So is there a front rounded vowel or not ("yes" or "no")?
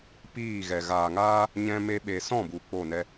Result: no